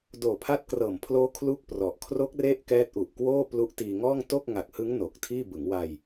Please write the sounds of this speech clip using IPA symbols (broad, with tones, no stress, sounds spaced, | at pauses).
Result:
d oː˨˩ pʰ a˦˥ t̚ k r ɤː˨˩ m pʰ l oː˦˥ kʰ l u˥˩ k̚ p r ɔ˨˩ ʔ kʰ r o˦˥ k̚ r e˦˥ ʔ k ɛː˦˥ t̚ ʔ u˨˩ ʔ k w oː˥˩ p l u˦˥ ʔ t iː˧ ŋ ɔː˥˩ ŋ t o˥˩ k̚ ŋ a˨˩ k̚ h ɯ˦˥ ŋ n o˨˩ k̚ tʰ iː˥˩ b ɯ˩˦ ŋ w a˧ j